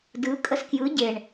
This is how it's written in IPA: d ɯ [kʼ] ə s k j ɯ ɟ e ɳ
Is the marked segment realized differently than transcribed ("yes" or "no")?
no